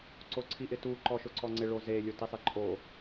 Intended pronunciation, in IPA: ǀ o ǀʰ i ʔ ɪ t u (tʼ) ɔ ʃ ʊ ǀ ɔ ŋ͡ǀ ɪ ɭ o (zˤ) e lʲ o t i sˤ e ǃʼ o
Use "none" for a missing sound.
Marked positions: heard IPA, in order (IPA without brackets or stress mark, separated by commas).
ǃ, z